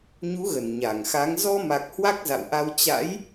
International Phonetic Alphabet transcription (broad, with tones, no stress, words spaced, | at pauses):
ɲu˨˦ɣə˧˩n ɲa˧˩ŋxa˨˦ŋ zɔ˧ma˨˩k̚ hwa˦˥k̚za̰˧˨wʔa˧w t͡ɕa̰˧˥j